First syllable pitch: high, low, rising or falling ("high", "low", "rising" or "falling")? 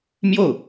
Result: falling